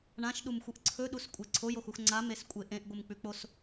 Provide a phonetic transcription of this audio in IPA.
ɳ ã ʃ ɗ u m xʷ ɨ ʔ ǀʰ ɵ ɗ u s kʷʼ e ǀʰ o j o x u x ŋ͡ǀ a m e s kʷʼ e ʔ ẽ ʔ ɡʷ ɨ m k͡p ʉ k͡p o s

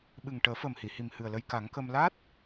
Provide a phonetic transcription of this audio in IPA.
ɓ ɨ˨˩ ŋ ʈ əː˨˩˦ f ə˨˩ m h i˨˩˨ h i˨˩ m h ɨ˨˩ ə̯ l ə˧ j k a˨˩˦ ŋ k ə˧ m l a˦˥ t̚

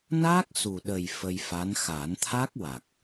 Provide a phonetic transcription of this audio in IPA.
n a˦˥ k̚ s u˨˩ ɗ ə˨˩ j f ə˧ j f a˧˥ n x a˨˩˦ n t̪ʰ a˦˥ k̚ w a˨˩ k̚

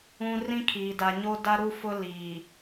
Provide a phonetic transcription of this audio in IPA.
ũ˦ r ĩ˦ kʰ iː˨ d a˨ ɲ o˦ d a˦ ɾ u˦ f ʊ˦ l iː˨

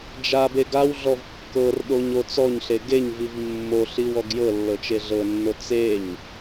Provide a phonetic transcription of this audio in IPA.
d͡ʒ a b e ɡ a w ɮ ɔ v kː ɤ r ɗ o ɲ o t͡s ɔ ɲ ɬ e ɡ e ɲ v i v mː o ɬ i w ɔ ɡ j ɤ lː ɤ t͡ʃ e ɮ ɤ nː o t͡s e ɲ

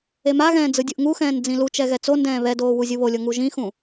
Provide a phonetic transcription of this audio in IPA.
e m a ɣ ɛ̃ː d͡z ɯ dʲ ɯ ʔ ŋ u x ɛ̃ː n d͡z ĩ l u t͡ʃ ɛ ɣ ɛ t͡s o n d ɛ̃ː β ɛ d oː w u zʲ ɯ β o lʲ ɤ ŋ u ʒ ĩ x ũ

